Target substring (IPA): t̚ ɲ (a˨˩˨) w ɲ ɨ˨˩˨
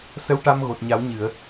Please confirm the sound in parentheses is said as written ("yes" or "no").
no